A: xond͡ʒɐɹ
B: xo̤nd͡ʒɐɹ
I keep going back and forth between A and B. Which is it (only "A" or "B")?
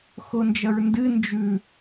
A